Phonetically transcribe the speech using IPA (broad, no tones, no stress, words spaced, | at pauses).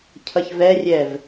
cʰʌçvɛrʲɛv